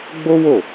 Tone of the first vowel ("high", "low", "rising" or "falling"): high